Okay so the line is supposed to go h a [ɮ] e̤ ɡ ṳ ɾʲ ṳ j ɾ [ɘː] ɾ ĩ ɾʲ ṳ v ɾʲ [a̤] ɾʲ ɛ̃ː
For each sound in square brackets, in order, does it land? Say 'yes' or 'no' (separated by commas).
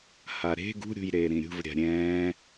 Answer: no, no, yes